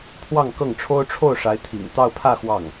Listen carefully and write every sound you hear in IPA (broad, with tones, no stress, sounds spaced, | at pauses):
pʰ w ɑ˥˧ ŋ k ɤ˥˩ ŋ ʈ͡ʂʰ o˥ ʊ̯ ʈ͡ʂʰ o˥˩ ʊ̯ ʂ a˧˥ ɪ̯ t̪ʰ ḭ˨˩ ŋ t̪ ɑ˥˧ ʊ̯ pʰ ä˥˧ x w ɑ˥˩ ŋ